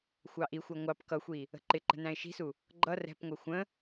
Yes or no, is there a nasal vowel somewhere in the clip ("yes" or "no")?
yes